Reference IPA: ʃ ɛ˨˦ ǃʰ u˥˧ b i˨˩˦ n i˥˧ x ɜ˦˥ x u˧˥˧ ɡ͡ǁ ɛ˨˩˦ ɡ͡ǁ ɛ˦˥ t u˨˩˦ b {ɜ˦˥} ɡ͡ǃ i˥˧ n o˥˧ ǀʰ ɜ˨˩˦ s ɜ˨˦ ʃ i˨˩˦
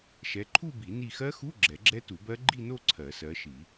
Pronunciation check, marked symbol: correct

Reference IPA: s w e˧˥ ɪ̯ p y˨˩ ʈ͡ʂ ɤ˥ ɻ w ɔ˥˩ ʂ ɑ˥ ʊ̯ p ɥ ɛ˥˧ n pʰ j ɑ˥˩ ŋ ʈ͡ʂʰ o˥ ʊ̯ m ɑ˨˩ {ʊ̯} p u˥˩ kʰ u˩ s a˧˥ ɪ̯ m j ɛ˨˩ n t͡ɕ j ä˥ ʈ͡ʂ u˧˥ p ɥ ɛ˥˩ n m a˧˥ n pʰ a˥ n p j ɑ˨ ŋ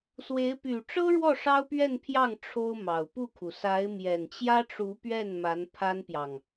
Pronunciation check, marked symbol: correct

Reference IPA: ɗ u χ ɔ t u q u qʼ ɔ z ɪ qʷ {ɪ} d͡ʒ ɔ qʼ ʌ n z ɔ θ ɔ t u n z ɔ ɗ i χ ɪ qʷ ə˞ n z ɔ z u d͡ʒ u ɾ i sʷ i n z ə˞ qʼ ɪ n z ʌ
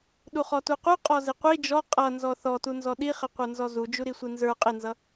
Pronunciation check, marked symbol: incorrect: i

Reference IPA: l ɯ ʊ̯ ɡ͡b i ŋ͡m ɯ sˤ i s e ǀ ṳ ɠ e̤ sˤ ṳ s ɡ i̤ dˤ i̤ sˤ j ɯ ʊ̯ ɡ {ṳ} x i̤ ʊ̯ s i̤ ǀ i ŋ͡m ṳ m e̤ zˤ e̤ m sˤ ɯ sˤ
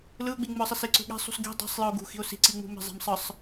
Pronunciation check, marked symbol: correct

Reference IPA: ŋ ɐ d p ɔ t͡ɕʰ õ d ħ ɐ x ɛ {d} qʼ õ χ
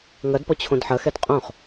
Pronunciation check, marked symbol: correct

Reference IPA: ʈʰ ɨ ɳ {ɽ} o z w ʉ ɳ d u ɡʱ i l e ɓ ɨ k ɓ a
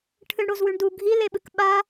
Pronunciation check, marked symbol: correct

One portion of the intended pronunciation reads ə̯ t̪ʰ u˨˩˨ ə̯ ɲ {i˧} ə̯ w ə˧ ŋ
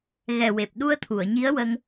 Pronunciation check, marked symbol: incorrect: i˧˥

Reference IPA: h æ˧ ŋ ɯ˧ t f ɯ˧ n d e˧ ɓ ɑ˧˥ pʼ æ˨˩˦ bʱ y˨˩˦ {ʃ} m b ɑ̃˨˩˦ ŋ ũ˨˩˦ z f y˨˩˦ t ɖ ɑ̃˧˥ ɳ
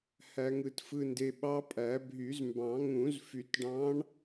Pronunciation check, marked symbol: incorrect: z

